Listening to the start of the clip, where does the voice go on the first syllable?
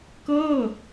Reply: falling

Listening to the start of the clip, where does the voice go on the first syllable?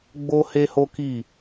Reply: high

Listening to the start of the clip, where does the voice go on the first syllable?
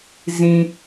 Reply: high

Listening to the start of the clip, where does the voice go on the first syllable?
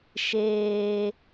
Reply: high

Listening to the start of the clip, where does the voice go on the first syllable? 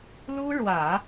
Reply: high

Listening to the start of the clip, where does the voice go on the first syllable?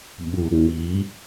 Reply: low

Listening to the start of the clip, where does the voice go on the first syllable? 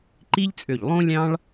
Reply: high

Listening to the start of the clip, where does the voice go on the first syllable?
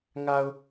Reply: low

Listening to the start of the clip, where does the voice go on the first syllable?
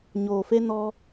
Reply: low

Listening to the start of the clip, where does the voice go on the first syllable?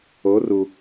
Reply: rising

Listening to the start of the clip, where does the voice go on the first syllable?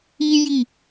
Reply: high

